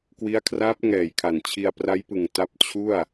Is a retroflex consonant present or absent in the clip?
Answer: absent